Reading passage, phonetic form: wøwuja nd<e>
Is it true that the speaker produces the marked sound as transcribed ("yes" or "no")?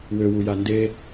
yes